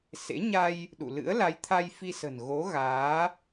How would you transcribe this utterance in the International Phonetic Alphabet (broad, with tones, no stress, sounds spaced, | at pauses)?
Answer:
s ḛ˧˥ ɲ a˧ j | ɗ ṵ˧˨ l ɨ̰˧˥ ə̯ l a˨˦ j t̪ʰ a˧ j f i˧ s ə̤˨˩ n ɣ o˨˦ ɣ aː˨˦